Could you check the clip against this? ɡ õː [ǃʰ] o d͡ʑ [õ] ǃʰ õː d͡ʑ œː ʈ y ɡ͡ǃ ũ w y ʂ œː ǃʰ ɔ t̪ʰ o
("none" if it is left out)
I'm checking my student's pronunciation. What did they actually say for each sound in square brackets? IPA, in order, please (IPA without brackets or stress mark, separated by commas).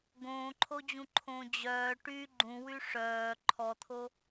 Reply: ǃʰ, ũ